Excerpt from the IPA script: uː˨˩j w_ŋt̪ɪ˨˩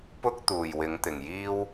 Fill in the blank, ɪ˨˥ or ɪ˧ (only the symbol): ɪ˨˥